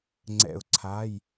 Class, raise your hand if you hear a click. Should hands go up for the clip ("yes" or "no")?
yes